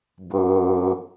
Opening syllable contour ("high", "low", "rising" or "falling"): low